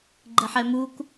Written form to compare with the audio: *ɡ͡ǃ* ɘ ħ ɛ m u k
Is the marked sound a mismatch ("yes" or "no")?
no